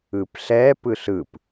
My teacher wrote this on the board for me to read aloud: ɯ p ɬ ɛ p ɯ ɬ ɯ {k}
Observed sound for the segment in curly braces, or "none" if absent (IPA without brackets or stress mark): p